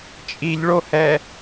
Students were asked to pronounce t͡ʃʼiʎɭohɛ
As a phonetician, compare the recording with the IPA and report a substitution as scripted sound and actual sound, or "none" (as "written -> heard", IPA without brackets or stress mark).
none